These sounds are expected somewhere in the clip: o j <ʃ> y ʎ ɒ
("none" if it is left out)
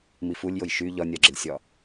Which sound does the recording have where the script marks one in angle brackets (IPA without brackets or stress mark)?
ʃ